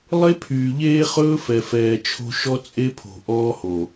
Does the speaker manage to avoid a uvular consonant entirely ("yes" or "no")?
no